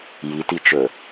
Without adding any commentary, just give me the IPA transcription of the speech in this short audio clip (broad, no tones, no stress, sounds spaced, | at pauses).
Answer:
j i t i t͡ʃ ɵ